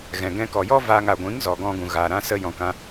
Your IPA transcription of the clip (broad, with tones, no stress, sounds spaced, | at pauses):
ɣ ɛ̃˨ ɡ ɛ̃˧ k ɔ˨ j ɔ˦ v aː˧ ŋ a˨ ɡʷ ĩ˨˦ ŋ z ɔ˨ ɡ ɔ̃˧ ɡ ũ˨ ɣ aː˨ ɾ ã˦ s ə˧ j ɔ̃˨ k ã˧